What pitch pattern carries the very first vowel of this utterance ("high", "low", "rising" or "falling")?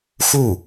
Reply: falling